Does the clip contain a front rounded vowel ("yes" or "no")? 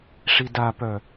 yes